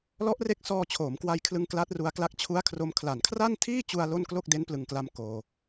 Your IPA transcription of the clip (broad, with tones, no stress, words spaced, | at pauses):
lɔ˦˥ʔre˦˥k̚sɔː˧ t͡ɕʰoː˩˦mkwa˧jkʰlɯ˧ŋ kla˦˥t̚ru˧a̯kla˦˥k̚ t͡ɕʰu˦˥a̯kʰro˧m kʰla˨˩nkʰra˥˩ntʰiː˥˩t͡ɕu˧a̯ lo˥˩n klo˥˩k̚de˦˥nplɯ˨˩ŋkla˧m koː˧